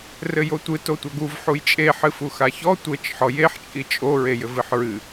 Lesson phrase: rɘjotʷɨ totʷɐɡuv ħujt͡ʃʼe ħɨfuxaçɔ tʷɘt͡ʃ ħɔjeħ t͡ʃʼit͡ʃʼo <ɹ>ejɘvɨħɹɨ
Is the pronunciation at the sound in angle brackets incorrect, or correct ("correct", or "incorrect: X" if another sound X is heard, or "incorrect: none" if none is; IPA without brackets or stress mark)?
correct